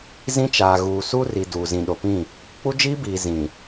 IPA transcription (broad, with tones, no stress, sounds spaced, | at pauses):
z ĩ˦ t͡ʃ aː˨ ɣ uː˨ s u˦ r i˨ d uː˨ z ĩ˨ ɗ o˨ p ĩ˦˨ | k͡p u˦ d͡ʒ iː˦ b iː˨ z ĩ˨